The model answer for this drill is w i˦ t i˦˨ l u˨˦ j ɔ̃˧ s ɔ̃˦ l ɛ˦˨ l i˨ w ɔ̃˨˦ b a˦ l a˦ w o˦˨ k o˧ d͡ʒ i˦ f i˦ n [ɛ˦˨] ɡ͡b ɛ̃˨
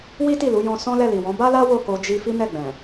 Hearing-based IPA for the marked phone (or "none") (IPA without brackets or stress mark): ɛ˦˨